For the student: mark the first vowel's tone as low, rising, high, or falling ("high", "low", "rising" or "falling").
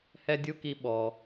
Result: high